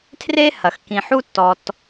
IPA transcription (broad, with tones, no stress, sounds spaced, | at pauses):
tʰ r e˥ h ɐ˩ x k ĩ˩ ħ u˥ tː ɔ˩ t